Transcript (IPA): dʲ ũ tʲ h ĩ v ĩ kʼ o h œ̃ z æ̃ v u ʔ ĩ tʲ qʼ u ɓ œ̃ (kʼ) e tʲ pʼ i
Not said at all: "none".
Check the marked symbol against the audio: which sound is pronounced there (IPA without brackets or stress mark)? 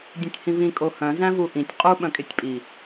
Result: kʼ